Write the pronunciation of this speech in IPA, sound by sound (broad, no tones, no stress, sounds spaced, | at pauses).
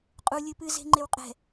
qʼ u lʲ ɨ p ɨ z e̤ ŋ͡ǃ e w qʼ ɛ̤